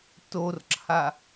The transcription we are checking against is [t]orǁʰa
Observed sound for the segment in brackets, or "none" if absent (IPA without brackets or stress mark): t